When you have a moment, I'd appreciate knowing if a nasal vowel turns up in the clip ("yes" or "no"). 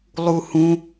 yes